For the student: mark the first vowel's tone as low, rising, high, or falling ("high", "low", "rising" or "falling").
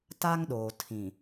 high